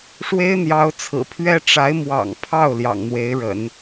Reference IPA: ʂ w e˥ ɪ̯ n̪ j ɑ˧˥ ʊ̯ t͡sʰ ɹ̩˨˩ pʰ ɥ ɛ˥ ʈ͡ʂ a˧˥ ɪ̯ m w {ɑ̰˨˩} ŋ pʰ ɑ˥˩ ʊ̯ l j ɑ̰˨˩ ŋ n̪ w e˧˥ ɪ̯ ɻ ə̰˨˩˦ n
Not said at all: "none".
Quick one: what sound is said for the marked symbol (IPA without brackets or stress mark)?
ɑ̰˨˩